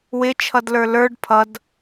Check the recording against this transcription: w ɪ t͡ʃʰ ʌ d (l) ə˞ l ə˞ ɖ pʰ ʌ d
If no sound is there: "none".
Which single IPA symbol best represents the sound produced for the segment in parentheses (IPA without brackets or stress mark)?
l